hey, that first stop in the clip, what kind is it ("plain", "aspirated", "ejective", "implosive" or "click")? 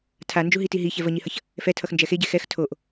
aspirated